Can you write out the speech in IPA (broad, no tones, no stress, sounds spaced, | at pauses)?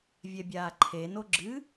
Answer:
vʲ ɛ bʲ aː ǃʰ e n o ɡ͡ǁ ɨ